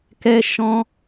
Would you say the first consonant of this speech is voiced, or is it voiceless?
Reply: voiceless